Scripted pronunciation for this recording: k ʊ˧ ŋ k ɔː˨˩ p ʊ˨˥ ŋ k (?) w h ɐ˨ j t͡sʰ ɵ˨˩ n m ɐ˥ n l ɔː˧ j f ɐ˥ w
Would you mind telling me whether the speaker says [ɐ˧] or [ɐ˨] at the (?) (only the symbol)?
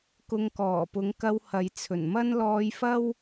ɐ˧